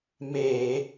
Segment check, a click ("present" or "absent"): absent